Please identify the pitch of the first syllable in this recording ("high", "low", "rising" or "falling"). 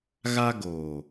high